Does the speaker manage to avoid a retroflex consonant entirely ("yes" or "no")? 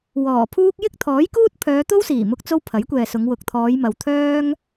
yes